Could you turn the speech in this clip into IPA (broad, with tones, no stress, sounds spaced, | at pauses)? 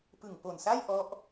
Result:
p ɯ˨˩ ŋ p o˨˩ n s a˥˩ j ʔ ɔ˦˥ ʔ